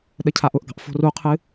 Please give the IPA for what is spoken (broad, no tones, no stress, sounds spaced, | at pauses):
ɗ ə cʰ a ʔ ʊ ʔ ɡ ɑ̤ ʔ f o̤ r u qʰ ɨ